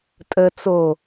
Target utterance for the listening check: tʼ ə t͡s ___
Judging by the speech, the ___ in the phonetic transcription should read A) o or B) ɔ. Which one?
A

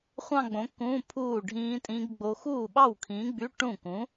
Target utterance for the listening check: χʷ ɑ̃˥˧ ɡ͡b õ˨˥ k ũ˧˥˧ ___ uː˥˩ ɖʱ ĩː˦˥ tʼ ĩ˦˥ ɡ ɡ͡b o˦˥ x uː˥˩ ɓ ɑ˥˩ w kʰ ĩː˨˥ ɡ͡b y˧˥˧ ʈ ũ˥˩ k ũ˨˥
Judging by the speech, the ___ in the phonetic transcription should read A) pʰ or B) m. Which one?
A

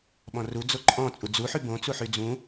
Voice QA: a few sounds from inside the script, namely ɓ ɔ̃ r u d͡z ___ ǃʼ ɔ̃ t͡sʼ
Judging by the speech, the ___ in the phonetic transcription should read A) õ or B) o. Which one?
B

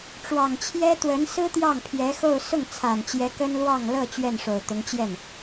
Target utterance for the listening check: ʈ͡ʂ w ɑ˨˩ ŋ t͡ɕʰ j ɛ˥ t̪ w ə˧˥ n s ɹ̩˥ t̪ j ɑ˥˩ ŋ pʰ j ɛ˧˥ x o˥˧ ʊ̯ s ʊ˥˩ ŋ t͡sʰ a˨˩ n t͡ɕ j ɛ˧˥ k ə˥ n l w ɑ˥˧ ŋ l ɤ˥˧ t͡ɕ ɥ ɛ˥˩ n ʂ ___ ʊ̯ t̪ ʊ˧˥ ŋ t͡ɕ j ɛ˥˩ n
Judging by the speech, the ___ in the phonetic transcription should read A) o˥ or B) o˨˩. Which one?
B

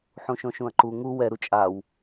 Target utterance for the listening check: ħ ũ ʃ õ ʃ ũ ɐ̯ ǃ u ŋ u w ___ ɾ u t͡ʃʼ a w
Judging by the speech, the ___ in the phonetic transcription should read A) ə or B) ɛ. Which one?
B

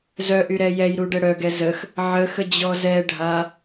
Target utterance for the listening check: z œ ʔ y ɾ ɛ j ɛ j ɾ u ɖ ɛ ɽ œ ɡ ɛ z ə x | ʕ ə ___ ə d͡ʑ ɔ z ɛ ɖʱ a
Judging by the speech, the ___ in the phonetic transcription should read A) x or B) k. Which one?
A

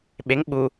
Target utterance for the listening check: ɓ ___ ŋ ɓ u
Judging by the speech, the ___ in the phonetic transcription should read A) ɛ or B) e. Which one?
B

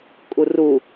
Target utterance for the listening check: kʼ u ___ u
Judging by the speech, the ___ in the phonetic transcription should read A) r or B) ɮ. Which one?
A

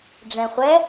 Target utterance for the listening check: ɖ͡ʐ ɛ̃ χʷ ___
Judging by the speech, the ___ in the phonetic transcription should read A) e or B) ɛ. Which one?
B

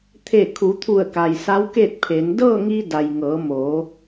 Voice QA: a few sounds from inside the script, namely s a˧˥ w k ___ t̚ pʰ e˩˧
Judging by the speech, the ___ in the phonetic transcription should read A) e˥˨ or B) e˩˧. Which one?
A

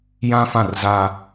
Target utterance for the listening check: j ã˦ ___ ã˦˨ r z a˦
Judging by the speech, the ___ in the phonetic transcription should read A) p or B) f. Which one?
B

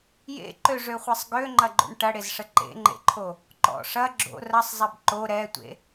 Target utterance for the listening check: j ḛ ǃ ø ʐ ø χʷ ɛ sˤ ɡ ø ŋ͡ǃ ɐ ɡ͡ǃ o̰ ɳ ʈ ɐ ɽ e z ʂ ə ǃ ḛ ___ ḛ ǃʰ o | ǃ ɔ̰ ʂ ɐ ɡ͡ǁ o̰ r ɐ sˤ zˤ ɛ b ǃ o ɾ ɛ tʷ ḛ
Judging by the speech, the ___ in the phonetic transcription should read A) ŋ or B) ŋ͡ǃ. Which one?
B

